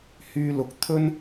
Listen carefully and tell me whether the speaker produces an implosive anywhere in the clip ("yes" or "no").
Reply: no